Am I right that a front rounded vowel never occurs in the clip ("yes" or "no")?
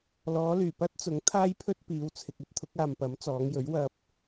no